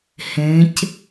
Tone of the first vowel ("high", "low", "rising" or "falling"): rising